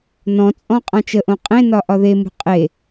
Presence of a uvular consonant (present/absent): present